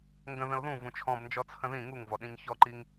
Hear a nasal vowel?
yes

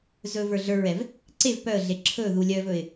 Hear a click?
yes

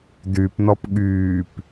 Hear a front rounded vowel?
yes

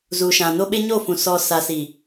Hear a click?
no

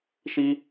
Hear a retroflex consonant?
no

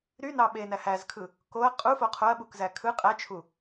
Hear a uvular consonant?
yes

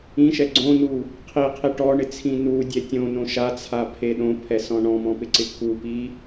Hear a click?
yes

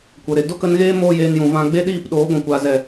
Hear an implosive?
yes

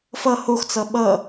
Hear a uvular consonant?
no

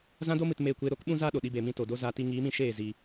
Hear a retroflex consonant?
no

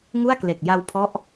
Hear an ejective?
no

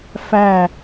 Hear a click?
no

